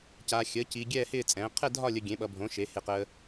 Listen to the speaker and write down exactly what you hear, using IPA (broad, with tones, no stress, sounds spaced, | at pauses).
c aː˧ xʲ əː˨˥ c i˧ ɡʲ ɛː˥˧ h ɪː˥˧ t͡sʼ ɛ̃ː˨˥ qʰ ɛ˥˧ dʱ ɒ˥˧ lʲ ə˧ ɡʲ ẽ˨˥ ɓ ʌ˧ bʱ õ˨˥ ʃ e˨˥ h e˧ q əː˧